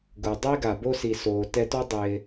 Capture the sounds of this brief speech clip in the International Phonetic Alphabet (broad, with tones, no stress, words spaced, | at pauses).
ɡu˩dˤi˥ɡa˩ bo˥si˩soː˩tɛ˦ tɔ˥dˤɪː˨